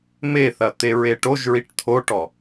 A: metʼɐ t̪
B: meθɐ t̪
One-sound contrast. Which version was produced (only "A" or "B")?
B